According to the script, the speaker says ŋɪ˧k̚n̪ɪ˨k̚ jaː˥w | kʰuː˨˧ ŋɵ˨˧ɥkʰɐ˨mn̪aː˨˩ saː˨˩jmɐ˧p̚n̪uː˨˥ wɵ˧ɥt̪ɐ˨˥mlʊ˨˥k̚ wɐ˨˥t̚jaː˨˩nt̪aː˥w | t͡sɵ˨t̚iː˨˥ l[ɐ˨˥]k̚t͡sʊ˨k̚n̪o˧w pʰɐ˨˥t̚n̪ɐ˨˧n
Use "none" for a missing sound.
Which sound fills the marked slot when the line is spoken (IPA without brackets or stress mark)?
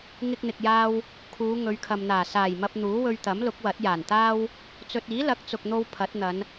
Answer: ɐ˨˥